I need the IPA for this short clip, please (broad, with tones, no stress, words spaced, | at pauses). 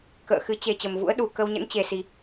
kə̰ː˧˨ xɨ˨˦ t͡ɕe˨˩ t͡ɕə˨˩mvṵ˧˥ə̯ɗu˨˩ kə˧wɲə̰˧˥nt͡ɕe˨˩ si˨˩